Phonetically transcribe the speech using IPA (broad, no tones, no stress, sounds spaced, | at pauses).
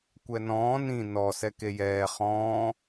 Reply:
kʷ ɛ n ɔ̃ː n ĩ n ɔ s ɛ k e j ɛː χ ɔ̃ː